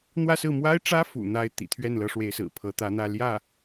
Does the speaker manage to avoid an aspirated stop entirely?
no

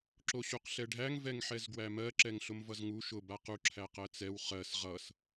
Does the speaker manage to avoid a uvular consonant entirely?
no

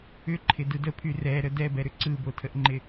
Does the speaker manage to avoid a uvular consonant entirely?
yes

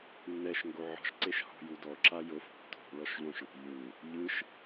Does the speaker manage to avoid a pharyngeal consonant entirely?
no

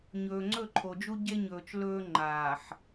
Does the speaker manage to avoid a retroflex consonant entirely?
yes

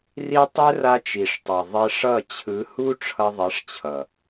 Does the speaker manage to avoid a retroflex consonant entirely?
no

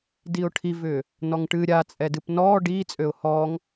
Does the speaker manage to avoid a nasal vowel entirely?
yes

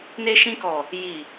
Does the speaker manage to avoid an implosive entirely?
yes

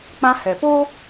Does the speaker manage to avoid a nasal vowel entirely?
no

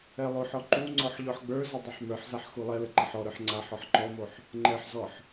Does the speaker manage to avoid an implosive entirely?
yes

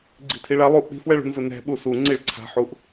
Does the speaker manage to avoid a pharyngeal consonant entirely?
no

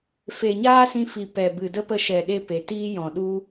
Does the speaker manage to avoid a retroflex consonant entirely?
yes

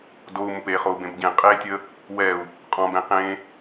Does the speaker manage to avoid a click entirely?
yes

